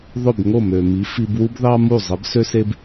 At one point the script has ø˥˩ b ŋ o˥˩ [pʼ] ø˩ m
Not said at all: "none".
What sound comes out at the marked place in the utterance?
m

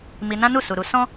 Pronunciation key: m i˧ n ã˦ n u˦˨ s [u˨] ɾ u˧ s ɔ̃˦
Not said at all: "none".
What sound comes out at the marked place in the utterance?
u˨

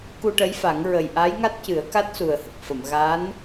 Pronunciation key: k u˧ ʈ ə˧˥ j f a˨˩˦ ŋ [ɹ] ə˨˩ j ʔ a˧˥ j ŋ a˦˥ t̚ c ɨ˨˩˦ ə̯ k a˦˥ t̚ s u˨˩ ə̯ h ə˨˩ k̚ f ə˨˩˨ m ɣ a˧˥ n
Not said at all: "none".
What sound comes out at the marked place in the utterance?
ɹ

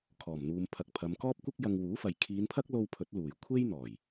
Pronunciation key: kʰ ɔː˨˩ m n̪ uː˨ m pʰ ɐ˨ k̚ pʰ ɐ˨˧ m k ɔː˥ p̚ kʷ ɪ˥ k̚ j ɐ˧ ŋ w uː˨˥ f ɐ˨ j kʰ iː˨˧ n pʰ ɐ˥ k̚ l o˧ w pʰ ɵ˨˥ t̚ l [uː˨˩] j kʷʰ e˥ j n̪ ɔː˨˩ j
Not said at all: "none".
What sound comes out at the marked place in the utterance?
uː˨˩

